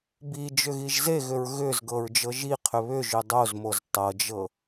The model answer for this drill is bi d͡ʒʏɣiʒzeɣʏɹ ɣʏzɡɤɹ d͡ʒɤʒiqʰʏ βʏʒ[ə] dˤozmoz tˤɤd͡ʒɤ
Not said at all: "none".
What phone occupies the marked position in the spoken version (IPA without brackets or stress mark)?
ʏ